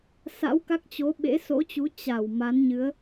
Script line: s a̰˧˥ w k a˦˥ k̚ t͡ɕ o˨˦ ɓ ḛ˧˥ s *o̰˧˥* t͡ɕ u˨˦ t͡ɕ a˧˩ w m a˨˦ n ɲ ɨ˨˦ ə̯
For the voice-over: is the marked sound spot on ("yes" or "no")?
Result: yes